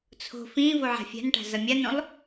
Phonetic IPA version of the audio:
t͡sʰ o̤ f ĩ v o ʕ a̤ fʲ a̤ n ʈ a̤ z ʌ mʲ a n õ lˠ

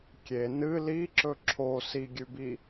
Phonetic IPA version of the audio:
kʲ e n ɨ l i ǁ ɵ ǁʰ o s i ɡʲ ʉ b i

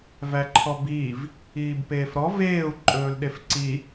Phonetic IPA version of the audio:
v æ ǃʰ ɔ b iː v | iː b p eː f ɾ ɔ v eː u̯ ǃʼ ɵː l ɗ e f ǀ i

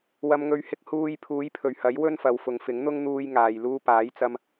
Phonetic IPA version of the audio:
w ɐ˨ m ŋ ɵ˨˧ ɥ h ɪ˧ k̚ h uː˧ j pʰ uː˨˥ j pʰ ɵ˨˩ ɥ h ɐ˨˥ j w ɵ˥ n f ɐ˨˧ w f ʊ˨˧ ŋ f ɪ˨˥ ŋ n̪ ʊ˥ ŋ n̪ uː˧ j ŋ aː˨ j l uː˧ p aː˨˥ j t͡s ɐ˧ m

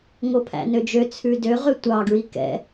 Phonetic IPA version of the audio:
ŋ o pʰ æ̰ n ø d͡ʒ ø t͡sʰ ʉ d ø ʁ ø tʷ ɑ ɡ ɹ i k ɛ̰

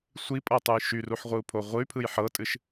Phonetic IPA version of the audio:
sʷ i pʼ ɤ tˤ u j ʃ y r u ħ ʁʷ ɯ u̯ pʰ o ʁʷ ɯ y̯ pʰ ɯ j ħ ɤ tʼ ɨ ʃ

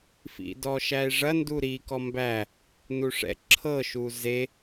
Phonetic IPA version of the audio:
f ḭ d ɔ ʃ æ e̯ ʐ ɐ n d u ɾ i k ɔ m b æ | n u ʂ ɛ̰ ǁʰ ɤ ʃ u z e

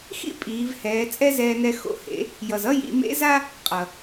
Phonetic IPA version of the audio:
x ḭ˥ pʼ iː˩˧ v h ɛː˩˧ t͡sʼ ɛ˥ z ɛː˧ n ɛ˧ x o̰˩˧ h ḛ˩˧ | j ʌ˩ z ʌ˥ j ḭ˩˧ m ḛ˧˥ z a˥ | qʼ ʌ˩

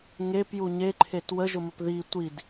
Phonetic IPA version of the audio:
ŋ e p j u ɲ e ǃʰ e t w ə ʒ ʊ m ə p ð i tʷ i d

